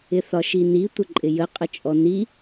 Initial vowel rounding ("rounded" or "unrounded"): unrounded